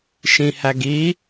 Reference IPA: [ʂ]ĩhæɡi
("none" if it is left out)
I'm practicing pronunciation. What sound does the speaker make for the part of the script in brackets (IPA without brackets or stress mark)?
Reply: ʃ